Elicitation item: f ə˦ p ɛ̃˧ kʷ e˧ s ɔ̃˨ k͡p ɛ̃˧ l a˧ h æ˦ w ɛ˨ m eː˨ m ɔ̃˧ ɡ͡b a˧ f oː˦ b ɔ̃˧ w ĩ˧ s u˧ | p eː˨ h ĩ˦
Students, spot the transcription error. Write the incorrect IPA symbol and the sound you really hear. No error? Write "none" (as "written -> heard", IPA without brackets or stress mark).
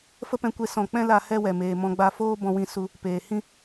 æ˦ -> ɛ˦